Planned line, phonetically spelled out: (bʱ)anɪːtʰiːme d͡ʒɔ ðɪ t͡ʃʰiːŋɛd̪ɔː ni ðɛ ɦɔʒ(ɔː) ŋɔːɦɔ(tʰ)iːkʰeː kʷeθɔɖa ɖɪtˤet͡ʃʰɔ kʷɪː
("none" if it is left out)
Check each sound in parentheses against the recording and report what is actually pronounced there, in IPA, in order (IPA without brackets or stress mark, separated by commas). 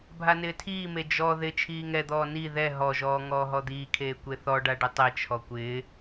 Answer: bʱ, ɔː, d̪